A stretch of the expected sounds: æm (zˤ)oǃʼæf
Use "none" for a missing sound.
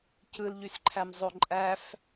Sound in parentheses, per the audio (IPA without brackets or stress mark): zˤ